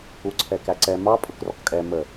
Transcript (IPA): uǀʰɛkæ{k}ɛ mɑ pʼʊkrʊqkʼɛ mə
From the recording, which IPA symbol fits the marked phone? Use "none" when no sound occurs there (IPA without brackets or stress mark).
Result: ǀ